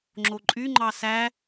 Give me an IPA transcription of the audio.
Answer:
ŋ͡ǁ o ǃʼ y ŋ͡ǃ ɑ s æ

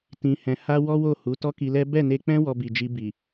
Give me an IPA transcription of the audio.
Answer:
t ĩ˧ h ɛ̃˧ h a˦ w ɔ˦ w o˦˨ h u˨˦ t ɔ˦ k i˧ l ɛ˦ b ɛ˦˨ n e˧ k͡p ɛ̃˦ w ɔ˧ b i˨ d͡ʒ i˧ b i˨

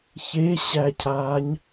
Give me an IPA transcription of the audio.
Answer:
ç e ɕ æ cʰ aː ɲ

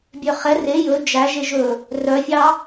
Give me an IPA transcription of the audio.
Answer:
bʲ œ χ ɛ r e j ɵ d͡ʒ æ ʒ e ʒ ɵ | r œ fʲ ɑ

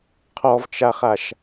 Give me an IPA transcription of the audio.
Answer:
qʰ ɔ v t͡ʃ a χ a ʃ

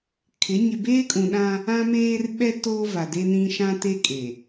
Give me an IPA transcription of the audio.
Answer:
kʰ ɪ˨˦ ɲ ɪ˨ b eː˦ kʼ ũ˨ ɗ ã˦ | ã˦ m eː˦ r ɓ ɛ˦ t oː˦ v a˨ d e˦ n ĩ˦ ʃ ã˦ t e˦ kʼ e˨

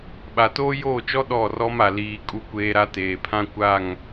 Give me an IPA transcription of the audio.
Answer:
ɓ a˨ t oː˦ j oː˦˨ t͡ʃ ɔ˦ ɗ ɔ˦˨ r ɔ˦ m a˨ l iː˨ kʼ u˦ kʷ eː˦ ɾ a˦ t eː˨ pʰ ã˦ kʷ a˦˨ ŋ

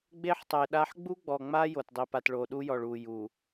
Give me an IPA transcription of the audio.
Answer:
ɡ͡b e˦ ħ tˤ e˨ ɗ a˦ ħ ɡ͡b u˦ ɡ͡b ɔ˨ ŋ͡m a˦ j o˨ t dˤ i˨ p a˨ t ɭ o˨ ɗ u˦ j ɔ˨ ɭ uː˨ j uː˨

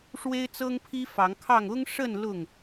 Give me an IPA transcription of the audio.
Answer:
ʂ w e˦ ɪ̯ t͡s ɤ˦ ŋ pʰ i˦ f ɑ˨˦ ŋ kʰ ɑ˥˨ ŋ ʊ˦ ŋ ʂ ə˥˨ n l ʊ˥˨ ŋ

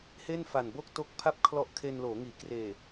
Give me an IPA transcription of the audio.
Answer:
h e˥˩ n f a˨˩ n b o˥˩ k̚ t o˦˥ k̚ pʰ a˥˩ p̚ kʰ l ɔ˦˥ ʔ kʰ e˧ n l oː˩˦ ŋ iː˩˦ k r eː˨˩

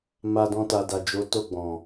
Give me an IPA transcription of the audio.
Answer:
m a˧ d ɔ̃˧ t a˨ d a˨ d͡ʒ o˨˦ t o˦˨ ɡ͡b ɔ̃˨

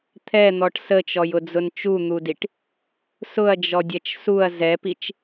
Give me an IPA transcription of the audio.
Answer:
t̪ʰ ɛ n̪ ɔ ʈ s ə t͡ʃ ɔ j ʊ d͡z ʊ n t͡ʃ u n̪ u d i ʈ | s ʊ ɐ̯ d͡ʒ ɔ dʲ ɛ t͡ʃ s u ɐ̯ z ɛ p i t͡ʃ

